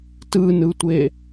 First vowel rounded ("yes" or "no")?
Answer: no